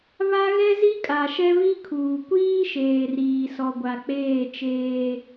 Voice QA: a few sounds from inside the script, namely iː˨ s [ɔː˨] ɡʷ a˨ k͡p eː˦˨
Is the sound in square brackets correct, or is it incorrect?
incorrect